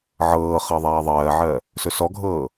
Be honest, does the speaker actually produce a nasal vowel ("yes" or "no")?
no